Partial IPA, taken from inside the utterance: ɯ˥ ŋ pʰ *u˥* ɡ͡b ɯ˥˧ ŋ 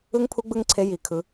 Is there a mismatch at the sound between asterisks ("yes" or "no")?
no